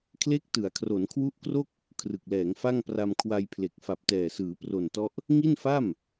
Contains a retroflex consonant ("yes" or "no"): no